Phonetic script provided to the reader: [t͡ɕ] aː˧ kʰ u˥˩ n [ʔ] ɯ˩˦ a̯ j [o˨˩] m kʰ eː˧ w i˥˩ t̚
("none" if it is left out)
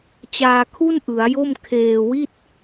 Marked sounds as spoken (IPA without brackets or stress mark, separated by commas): t͡ɕ, ʔ, o˥˩